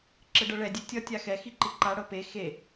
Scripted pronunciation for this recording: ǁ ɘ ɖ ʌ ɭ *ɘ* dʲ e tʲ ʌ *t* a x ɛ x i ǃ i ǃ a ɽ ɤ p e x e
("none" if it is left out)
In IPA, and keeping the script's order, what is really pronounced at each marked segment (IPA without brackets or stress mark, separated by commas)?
ɛ, tʲ